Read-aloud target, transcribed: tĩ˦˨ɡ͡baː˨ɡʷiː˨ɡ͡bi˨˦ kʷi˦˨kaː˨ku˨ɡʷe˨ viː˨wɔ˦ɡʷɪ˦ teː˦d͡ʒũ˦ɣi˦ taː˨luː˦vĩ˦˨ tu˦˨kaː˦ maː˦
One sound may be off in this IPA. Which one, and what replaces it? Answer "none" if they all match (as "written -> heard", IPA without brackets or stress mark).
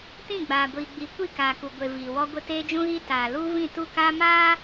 none